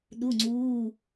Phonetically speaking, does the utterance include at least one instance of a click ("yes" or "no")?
yes